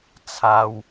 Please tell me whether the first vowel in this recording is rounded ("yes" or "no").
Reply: no